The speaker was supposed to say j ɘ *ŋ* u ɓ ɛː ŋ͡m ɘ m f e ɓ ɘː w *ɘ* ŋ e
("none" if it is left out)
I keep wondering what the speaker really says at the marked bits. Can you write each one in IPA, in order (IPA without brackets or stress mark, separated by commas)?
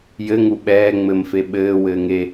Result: ŋ, ɘː